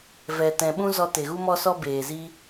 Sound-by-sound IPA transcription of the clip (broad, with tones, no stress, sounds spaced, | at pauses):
v ɛ˨ t ɛ̃˨ ɓ ũ˦ z ɔ˧ t e˨ ɣ u˦ m ɔ˦ s ɔ˦ b eː˨ z i˦